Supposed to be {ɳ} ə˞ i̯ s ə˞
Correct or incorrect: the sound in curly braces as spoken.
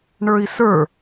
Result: correct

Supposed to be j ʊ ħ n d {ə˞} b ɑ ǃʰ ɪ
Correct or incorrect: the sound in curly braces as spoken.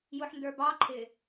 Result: correct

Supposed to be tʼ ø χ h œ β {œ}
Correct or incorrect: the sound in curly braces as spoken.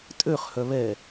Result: incorrect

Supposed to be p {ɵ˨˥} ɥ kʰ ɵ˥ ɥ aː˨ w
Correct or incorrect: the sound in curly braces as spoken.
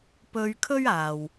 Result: incorrect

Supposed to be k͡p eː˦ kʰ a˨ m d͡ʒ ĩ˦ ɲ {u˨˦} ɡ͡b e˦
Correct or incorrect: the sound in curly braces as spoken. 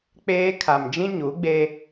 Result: correct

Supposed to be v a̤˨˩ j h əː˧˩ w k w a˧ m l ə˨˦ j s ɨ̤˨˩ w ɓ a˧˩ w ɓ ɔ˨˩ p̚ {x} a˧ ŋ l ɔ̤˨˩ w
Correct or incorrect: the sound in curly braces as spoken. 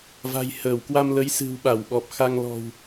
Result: correct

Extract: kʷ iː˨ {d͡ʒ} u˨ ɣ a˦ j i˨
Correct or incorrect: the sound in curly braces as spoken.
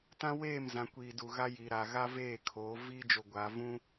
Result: incorrect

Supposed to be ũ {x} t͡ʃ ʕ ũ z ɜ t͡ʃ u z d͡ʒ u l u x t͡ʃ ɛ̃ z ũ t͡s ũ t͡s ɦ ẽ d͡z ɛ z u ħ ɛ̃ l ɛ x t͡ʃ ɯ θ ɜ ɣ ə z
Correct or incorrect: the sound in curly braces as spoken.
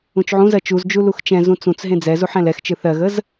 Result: incorrect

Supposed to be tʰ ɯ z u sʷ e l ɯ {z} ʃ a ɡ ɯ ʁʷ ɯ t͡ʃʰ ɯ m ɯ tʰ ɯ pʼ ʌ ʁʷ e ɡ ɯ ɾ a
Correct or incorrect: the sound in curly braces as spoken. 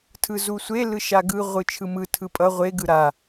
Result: incorrect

